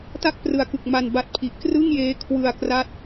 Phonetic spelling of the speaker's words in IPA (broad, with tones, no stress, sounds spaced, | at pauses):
t a˥˩ k̚ p r ɯ˨˩ a̯ k ɯ˨˩ k̚ m a˧ n b a˦˥ t̚ pʰ i˨˩ ʔ k r ɯ˥˩ ŋ j eː˦˥ kʰ w ɯ˧ a̯ k r a˥˩ t̚